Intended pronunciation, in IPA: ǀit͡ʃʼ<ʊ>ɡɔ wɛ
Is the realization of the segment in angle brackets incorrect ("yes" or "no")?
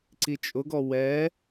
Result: no